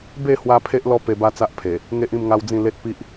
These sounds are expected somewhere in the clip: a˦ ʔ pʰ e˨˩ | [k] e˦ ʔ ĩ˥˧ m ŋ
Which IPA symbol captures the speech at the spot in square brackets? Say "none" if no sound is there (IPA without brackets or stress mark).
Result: ŋ